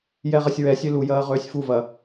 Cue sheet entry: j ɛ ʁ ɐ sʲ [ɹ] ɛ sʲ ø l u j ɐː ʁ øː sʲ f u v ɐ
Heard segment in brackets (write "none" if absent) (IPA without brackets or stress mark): ɹ